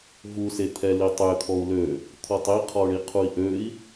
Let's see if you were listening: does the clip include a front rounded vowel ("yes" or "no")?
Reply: yes